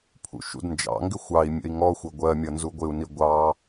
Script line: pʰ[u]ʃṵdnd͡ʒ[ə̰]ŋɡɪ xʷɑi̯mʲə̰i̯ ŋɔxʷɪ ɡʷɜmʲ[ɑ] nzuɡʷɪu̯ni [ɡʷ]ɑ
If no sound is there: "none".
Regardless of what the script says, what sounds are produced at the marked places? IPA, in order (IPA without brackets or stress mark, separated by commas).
ṵ, ɑ̰, ʌ, ɡʷ